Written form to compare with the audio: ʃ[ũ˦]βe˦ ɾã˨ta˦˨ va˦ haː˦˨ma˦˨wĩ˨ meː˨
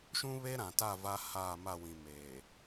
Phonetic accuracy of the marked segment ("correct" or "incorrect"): correct